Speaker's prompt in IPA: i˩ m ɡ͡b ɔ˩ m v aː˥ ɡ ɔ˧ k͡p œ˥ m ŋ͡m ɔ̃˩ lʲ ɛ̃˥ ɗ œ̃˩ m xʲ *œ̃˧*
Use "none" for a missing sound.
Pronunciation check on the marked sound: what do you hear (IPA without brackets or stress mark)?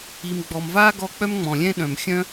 œ̃˥